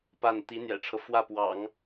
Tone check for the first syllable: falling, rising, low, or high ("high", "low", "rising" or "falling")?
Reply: falling